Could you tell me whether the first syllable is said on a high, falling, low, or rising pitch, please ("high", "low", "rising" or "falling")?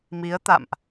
rising